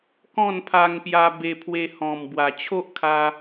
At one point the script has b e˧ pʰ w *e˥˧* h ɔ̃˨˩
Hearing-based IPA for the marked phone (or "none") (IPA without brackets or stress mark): e˧